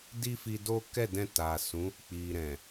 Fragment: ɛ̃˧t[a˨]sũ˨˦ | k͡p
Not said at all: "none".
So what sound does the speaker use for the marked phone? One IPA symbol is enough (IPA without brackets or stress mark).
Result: a˨